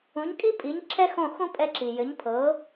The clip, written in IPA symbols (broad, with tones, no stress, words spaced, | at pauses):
ũ˩˥ɲkʼi˥pʼi˩˥ɲ ǁʰɛ˥xõ˥˩xũ˥ pʼɛ˧ǁi˩ jɘ˩˥ɲpʰɤ˩˥